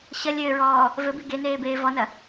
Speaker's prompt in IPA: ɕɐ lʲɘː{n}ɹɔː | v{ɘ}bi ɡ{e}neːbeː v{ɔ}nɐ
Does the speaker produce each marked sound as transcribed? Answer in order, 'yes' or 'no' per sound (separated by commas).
no, yes, yes, yes